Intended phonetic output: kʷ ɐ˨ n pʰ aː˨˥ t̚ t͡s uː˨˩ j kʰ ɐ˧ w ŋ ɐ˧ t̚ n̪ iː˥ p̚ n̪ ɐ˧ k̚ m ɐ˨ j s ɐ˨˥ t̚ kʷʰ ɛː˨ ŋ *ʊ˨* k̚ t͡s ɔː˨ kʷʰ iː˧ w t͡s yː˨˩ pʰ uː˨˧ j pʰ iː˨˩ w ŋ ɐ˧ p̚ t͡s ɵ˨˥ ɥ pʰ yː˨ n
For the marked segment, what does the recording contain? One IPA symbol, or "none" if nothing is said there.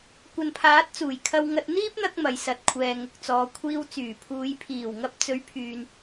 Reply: ʊ˨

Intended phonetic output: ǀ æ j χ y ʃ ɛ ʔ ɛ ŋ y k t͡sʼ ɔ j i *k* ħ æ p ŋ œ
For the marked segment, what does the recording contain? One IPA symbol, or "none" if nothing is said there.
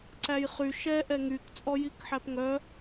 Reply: k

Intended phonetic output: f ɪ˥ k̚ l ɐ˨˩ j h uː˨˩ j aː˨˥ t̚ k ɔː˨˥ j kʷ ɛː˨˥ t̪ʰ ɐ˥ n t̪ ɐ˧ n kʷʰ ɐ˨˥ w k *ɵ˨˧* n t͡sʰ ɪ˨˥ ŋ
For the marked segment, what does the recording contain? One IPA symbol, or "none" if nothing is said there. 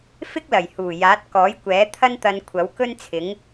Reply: ɵ˥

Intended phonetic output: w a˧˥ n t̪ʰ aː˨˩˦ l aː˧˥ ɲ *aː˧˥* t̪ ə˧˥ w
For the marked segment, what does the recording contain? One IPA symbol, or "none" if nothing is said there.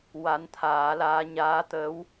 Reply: aː˧˥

